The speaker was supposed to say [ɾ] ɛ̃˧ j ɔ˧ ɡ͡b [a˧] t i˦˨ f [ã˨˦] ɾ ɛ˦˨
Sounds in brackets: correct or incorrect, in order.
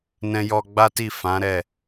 incorrect, incorrect, correct

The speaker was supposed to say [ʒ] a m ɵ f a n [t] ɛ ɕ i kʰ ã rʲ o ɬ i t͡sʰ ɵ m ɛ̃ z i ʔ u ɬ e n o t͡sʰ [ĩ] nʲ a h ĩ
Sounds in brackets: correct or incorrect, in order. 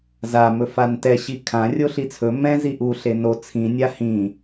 incorrect, correct, correct

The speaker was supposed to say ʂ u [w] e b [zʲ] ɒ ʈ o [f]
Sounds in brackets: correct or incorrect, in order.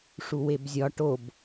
correct, correct, incorrect

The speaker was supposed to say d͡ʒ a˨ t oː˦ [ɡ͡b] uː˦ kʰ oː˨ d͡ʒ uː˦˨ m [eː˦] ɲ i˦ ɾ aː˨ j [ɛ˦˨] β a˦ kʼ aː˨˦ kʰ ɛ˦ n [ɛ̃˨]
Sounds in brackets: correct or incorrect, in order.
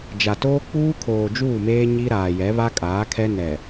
incorrect, correct, incorrect, incorrect

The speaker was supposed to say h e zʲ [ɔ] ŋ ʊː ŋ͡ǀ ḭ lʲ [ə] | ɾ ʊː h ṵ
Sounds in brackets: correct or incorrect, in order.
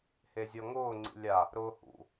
correct, incorrect

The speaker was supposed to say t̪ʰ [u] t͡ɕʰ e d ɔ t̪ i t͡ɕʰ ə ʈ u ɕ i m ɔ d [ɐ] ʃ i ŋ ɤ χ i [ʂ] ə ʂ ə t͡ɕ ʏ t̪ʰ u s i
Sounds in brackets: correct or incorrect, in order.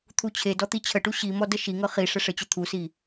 correct, incorrect, correct

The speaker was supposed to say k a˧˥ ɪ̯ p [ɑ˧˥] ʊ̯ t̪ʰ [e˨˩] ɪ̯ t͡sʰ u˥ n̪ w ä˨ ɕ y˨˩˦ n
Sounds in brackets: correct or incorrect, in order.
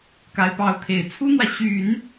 correct, correct

